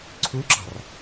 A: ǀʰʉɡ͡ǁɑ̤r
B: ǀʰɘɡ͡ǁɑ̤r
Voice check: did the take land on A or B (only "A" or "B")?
A